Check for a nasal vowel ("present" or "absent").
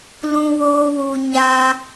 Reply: present